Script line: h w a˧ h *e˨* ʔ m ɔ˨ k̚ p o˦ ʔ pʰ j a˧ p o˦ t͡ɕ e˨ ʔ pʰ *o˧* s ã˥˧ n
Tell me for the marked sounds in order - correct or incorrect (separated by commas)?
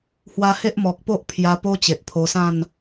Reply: incorrect, correct